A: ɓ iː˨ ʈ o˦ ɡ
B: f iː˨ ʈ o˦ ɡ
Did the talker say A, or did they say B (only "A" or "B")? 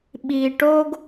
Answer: A